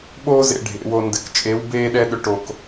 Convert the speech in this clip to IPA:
ɓoː˥zḛ˧ ɖʱḛ˩˧wo˧ndɘ˧k t͡ʃʼe˧˥w beː˥ɗɛ˥ɗʏ˧˥ ʈo˧k

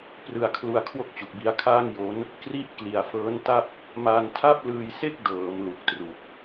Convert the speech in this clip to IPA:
prɯ˧a̯kʰlu˧a̯ kʰwo˥˩k̚t͡ɕu˨˩k̚bi˧a̯kʰaː˥˩ŋ jo˦˥n | kri˥˩ʔ kli˨˩a̯fɤː˦˥nta˥˩p̚ | ma˧ntʰa˥˩p̚lɯː˧jse˥˩k̚ dɤː˩˦m lu˨˩k̚tru˨˩k̚

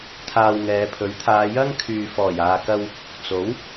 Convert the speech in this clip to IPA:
t̪ʰaː˧wŋɛː˨˧ pʰɵ˨˥ɥ t̪ʰaː˨˧jɐ˥ŋkʰyː˨ fɔː˨˩jaː˨kɐ˧w | t͡so˨˥w

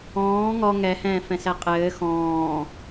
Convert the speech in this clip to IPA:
ɔ̃ː ŋɔ ŋɛhɛ̃ːfɛ̃sɛ qʼɘː xɔ̃ː

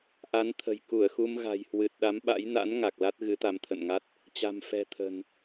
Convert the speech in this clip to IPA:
ʔa˨˦nt̪ʰə̤˨˩jku˧˩ə̯xu˧m ɣa̤˨˩jhwɨ˨˩t̚ɗa˨˦mɓa̰˧˥j na̰˧˥n ŋa˨˩k̚la˦˥t̚ ɣɨ˨˦t̪a˨˦mt̪ʰə̰˧˨nŋa˦˥t̚ | t͡ɕa̤˨˩mfɛ̤˨˩t̪ʰə̤˨˩n

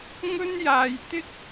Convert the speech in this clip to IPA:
ŋɵ˥njaː˧jt̪ɪ˥k̚

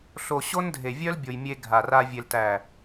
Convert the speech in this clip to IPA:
ɬo˨ ɕo˦ndʱe˨vʲœ˦l bʲo˨jmʲe˧ ɡʱa˨ra˧ vʲe˨ltæ˨

